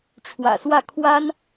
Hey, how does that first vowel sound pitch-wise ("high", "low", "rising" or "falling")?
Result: low